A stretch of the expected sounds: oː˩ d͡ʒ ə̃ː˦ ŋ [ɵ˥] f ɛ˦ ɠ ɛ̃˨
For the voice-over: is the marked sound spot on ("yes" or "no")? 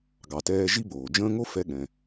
no